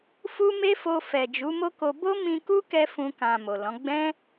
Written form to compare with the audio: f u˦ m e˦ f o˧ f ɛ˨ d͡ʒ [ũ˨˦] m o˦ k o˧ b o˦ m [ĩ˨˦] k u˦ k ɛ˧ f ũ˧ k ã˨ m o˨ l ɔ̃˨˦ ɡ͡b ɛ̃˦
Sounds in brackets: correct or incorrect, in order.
incorrect, incorrect

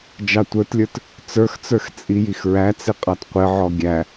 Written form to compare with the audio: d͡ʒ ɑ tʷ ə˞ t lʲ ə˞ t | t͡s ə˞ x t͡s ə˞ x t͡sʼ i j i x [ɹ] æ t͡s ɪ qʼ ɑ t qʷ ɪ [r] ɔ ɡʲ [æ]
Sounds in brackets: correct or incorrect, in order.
correct, incorrect, correct

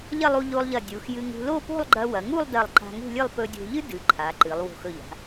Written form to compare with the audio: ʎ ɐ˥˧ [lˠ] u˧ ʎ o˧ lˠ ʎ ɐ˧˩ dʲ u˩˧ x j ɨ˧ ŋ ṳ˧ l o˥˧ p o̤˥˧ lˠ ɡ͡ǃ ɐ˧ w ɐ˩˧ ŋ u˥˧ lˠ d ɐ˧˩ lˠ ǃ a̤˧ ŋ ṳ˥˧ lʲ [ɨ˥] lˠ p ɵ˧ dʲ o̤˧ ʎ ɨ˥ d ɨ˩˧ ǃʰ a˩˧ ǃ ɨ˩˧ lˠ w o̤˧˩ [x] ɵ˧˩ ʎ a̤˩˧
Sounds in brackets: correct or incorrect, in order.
correct, incorrect, correct

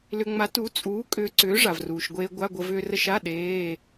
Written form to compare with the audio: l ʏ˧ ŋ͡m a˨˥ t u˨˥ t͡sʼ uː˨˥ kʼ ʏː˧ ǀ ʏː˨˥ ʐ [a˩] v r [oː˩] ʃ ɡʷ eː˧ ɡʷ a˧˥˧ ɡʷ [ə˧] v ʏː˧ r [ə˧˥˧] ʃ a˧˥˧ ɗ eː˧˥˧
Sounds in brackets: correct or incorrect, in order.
correct, incorrect, correct, correct

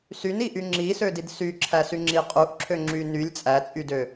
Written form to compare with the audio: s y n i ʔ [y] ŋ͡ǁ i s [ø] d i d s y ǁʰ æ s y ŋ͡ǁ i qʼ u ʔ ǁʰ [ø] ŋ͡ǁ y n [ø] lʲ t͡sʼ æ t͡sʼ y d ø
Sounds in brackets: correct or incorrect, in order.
correct, correct, correct, incorrect

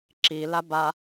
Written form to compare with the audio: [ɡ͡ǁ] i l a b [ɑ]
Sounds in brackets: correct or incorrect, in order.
incorrect, incorrect

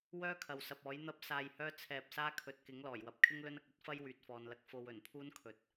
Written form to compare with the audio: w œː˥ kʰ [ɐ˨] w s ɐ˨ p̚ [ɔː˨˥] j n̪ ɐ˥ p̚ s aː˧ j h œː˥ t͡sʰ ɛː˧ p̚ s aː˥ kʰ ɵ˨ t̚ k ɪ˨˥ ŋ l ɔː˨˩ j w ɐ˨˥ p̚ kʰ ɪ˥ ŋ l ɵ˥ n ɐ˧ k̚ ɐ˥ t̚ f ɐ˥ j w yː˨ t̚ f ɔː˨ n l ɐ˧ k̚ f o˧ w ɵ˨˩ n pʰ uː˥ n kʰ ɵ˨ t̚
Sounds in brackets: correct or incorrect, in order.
correct, correct

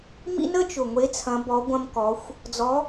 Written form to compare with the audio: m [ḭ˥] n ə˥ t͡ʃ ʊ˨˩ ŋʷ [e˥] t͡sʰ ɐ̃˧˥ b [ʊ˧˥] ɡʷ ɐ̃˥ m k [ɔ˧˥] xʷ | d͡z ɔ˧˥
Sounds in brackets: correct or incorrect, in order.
correct, incorrect, incorrect, correct

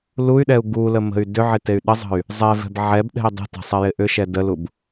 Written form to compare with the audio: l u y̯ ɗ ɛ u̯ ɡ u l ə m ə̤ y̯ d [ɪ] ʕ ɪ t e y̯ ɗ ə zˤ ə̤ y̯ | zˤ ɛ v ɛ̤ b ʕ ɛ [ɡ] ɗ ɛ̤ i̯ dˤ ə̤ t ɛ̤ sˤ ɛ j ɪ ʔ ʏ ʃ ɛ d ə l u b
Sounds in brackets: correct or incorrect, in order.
incorrect, incorrect

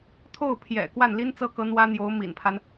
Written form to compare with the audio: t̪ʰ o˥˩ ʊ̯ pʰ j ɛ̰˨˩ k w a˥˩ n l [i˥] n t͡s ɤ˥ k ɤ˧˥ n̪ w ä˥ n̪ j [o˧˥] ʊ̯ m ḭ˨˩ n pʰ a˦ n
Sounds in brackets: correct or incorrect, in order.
correct, correct

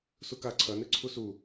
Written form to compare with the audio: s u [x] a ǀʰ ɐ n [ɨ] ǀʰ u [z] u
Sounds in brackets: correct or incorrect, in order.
incorrect, correct, incorrect

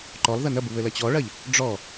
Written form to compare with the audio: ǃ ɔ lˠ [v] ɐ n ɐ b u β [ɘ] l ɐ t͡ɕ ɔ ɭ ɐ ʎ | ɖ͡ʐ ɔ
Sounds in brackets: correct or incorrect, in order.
incorrect, correct

